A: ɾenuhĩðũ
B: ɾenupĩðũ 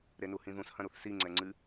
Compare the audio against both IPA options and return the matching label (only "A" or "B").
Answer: A